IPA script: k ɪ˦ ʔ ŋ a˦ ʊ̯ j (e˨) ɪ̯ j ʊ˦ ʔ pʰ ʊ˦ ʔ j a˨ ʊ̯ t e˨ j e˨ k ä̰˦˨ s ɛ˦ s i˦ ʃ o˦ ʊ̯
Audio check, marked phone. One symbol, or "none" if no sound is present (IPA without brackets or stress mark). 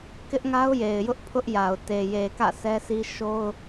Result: e˨